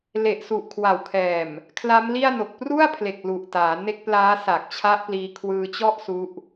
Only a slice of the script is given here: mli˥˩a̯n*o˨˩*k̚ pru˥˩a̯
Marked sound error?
no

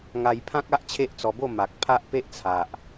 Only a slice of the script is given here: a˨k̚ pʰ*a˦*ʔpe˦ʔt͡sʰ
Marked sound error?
no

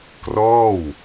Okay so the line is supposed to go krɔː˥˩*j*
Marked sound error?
yes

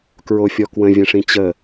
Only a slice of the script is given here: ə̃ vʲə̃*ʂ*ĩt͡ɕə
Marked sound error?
no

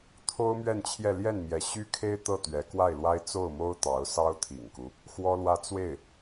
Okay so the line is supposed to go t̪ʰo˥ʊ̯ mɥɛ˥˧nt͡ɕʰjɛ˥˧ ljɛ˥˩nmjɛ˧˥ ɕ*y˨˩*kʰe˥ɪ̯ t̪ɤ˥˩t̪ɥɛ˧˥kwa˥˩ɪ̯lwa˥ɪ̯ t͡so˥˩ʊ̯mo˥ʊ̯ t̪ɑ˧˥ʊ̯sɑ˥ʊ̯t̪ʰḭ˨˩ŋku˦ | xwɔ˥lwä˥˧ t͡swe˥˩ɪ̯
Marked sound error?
yes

